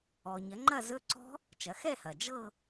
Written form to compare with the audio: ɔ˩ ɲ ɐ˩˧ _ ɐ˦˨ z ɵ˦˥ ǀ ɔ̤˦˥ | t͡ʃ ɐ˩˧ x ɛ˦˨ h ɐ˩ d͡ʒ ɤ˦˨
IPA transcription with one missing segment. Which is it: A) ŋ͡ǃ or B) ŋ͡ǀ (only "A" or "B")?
A